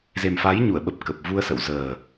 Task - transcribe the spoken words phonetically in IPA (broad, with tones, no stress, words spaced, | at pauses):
ze˨˩mfa˨˦jɲu˧˩ə̯ɓə˨˩p̚ kə˨˩p̚vu˧ə̯sə̰˧˨w zəː˨˩